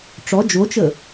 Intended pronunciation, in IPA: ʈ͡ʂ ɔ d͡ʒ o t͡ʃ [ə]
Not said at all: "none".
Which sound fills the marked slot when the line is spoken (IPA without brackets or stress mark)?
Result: ə